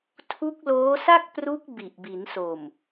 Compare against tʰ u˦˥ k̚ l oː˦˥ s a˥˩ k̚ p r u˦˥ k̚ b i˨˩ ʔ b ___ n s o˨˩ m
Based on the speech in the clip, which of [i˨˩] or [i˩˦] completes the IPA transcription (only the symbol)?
i˩˦